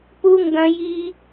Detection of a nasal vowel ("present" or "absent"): present